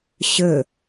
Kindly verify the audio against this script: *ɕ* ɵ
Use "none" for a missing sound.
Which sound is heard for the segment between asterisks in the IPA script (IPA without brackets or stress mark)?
ɕ